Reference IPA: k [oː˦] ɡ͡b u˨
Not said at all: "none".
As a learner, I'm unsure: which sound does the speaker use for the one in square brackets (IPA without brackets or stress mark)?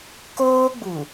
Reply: oː˦